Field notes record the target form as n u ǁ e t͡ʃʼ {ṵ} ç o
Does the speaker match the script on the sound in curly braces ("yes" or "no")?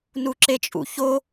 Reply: yes